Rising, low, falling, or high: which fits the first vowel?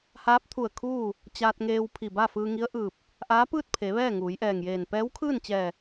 rising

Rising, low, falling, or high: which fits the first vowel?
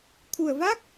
low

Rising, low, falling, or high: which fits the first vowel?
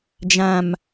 low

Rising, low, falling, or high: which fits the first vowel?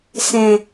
low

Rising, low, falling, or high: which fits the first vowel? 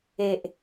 low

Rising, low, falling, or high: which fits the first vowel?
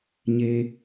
high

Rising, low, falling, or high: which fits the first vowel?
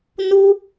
high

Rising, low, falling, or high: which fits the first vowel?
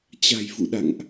low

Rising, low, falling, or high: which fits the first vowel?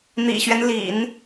low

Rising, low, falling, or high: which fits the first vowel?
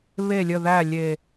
low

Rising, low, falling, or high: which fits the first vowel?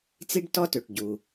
high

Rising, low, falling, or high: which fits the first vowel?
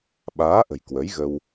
rising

